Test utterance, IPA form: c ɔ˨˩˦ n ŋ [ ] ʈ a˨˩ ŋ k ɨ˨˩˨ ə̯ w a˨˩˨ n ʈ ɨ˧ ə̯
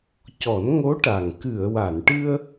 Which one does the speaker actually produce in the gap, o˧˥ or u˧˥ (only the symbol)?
o˧˥